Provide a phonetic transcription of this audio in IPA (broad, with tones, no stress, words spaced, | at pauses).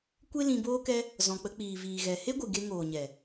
kʷe˦lĩ˧boː˦kɛ˦ | zɔ̃˨k͡pə˧ k͡piː˨viː˨ɣɛ˨ he˦ɡʷɨ˨ ɡe˧ŋoː˨ɲɛ˨